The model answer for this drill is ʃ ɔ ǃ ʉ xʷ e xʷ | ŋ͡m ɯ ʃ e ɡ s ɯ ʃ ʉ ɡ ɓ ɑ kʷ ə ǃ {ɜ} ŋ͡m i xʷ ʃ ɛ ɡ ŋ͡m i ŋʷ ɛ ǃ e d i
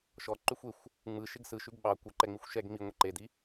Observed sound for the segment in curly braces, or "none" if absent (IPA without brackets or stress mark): ɛ